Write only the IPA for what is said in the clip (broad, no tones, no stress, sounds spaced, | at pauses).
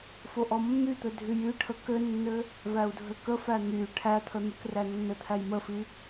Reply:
f o ʔ ɔ mː y t̪ ɘ dʱ y j y ʈʰ ə k ɘ nː ɘ | v æ u̯ dʱ ɘ k ə f æ n̪ y ʈʰ æ t̪ʰ ə n̪ y k r æ nː ɘ t̪ʰ æ j m ə f i